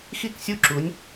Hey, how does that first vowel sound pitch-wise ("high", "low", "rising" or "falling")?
falling